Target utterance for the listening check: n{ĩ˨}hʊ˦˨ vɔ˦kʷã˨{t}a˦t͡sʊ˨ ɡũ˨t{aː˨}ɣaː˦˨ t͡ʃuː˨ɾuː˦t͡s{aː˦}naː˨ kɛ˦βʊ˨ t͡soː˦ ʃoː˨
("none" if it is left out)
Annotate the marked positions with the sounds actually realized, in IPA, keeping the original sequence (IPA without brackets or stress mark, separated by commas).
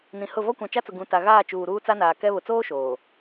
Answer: ĩ˨, t͡ʃ, a˨, a˦